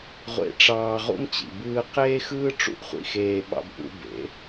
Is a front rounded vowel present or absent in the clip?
absent